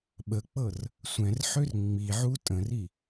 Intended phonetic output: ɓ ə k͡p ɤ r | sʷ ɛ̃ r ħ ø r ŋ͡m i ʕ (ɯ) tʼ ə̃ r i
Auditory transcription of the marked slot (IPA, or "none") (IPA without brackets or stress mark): u